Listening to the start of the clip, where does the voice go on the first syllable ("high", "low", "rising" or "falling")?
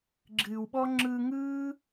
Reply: low